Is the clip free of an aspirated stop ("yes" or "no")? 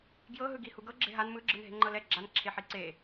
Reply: no